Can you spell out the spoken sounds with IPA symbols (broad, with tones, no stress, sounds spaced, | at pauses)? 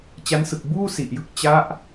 t͡ɕ a˦˥ n s ɯ˨˩ k̚ b uː˥˩ s i˨˩ ʔ j ɯ˦˥ k̚ t͡ɕ a˦˥ ʔ